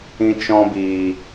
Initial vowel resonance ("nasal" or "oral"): nasal